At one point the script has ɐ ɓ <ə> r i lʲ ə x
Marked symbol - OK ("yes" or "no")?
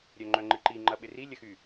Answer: no